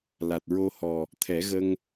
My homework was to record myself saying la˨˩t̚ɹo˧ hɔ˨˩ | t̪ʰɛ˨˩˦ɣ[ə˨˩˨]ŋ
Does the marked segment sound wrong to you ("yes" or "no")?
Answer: yes